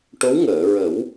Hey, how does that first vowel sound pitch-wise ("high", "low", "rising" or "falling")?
rising